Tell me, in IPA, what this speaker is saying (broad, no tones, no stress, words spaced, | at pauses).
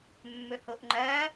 mːɵhoʔŋ͡ǃɐː